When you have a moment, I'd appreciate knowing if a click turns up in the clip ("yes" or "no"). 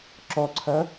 yes